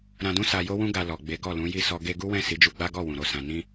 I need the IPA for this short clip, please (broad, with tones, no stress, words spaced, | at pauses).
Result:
ɾã˧dũ˦ sa˧ jo˦wũ˦ ɡa˧lɔ˨ ɡ͡be˨˦ɡɔ˦˨lũ˨˦ ji˦˨ sɔ˧ ɡe˧ɡu˦wɛ̃˦˨ si˨˦d͡ʒu˧ɡ͡ba˦ɡɔ˦˨ wũ˨ɾo˨˦sã˧ nĩ˧